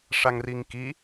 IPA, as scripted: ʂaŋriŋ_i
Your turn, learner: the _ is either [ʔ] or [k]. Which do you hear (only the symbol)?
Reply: k